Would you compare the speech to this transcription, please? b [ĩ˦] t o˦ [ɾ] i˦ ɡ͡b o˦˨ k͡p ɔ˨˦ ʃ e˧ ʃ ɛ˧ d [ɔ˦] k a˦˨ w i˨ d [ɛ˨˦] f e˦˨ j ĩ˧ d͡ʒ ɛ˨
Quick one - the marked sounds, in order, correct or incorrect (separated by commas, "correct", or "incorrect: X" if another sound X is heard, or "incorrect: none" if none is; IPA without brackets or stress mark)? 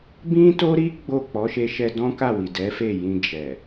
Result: correct, correct, incorrect: ɔ̃˦, correct